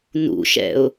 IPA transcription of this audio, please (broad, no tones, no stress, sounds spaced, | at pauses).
n ṵ ʃ ɛ̰ ʊ̯